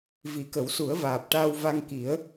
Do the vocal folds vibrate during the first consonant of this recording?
yes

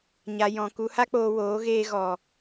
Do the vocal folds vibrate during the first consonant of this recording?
yes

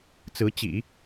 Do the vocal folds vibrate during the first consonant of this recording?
no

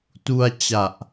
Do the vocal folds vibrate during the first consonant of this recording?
no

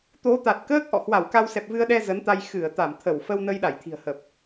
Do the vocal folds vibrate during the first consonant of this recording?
no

